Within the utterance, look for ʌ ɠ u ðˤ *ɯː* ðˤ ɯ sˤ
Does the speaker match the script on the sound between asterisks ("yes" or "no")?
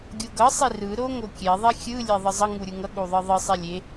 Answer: no